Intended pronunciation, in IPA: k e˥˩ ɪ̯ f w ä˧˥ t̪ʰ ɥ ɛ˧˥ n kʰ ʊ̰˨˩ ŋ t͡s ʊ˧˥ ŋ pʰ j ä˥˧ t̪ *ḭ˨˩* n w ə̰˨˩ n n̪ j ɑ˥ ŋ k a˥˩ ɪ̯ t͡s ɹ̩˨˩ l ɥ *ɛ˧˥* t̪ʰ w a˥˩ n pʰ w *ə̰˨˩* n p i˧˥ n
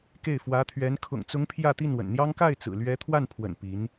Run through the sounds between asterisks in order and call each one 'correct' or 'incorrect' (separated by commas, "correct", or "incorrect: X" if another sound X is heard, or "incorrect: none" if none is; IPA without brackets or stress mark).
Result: incorrect: i˥˩, correct, correct